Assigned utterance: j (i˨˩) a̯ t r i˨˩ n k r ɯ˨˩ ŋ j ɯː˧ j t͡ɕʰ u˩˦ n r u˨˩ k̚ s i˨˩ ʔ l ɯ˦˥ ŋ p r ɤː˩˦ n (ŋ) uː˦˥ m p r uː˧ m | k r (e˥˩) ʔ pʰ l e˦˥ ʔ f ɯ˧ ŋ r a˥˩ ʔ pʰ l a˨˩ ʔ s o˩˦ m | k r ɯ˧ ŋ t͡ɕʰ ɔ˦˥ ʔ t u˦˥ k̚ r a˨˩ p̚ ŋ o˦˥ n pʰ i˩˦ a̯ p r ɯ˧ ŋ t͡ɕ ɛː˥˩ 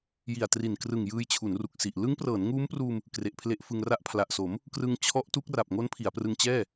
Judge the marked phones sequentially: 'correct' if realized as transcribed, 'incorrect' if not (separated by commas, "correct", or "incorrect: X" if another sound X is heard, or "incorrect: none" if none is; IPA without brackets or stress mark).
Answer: correct, correct, incorrect: e˨˩